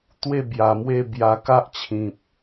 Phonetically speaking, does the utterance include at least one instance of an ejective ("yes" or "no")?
no